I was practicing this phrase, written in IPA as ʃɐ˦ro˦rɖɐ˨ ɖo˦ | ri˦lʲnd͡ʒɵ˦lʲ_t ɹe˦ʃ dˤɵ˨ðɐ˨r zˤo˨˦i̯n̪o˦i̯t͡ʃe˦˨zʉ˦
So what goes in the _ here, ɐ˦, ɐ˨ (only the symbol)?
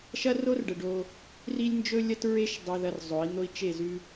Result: ɐ˦